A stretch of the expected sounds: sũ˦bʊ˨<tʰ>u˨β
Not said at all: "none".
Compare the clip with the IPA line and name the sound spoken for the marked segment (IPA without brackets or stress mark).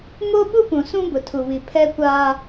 tʰ